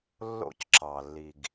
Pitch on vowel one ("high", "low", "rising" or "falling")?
falling